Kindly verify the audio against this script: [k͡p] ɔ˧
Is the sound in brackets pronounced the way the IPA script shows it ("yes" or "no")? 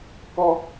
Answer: no